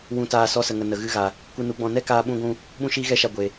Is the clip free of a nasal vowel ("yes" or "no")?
no